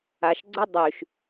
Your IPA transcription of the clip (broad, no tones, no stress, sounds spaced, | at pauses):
a ʃ ɡ͡ǀ ʊ dˤ y ʃ